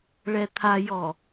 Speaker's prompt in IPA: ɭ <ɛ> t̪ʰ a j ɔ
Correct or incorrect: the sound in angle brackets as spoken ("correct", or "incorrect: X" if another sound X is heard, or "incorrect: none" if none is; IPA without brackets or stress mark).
correct